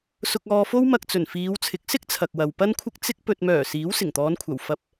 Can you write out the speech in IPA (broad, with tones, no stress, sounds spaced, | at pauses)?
s ʊ˧ k̚ ɔː˧ f o˥ w m ɐ˧ k̚ t͡s ɵ˨˩ n f iː˨˧ w t͡sʰ ɪ˨˥ k̚ s ɪ˥ k̚ t͡sʰ ɐ˨ k̚ w ɐ˨ w p ɐ˥ n kʷʰ ɪ˥ k̚ t͡s ɪ˥ k̚ p ɵ˨ t̚ m œː˨˩ s iː˨˥ w s ɪ˨˩ ŋ t̪ ɔː˨˧ n kʷʰ ɐ˨˩ w f ɐ˧ p̚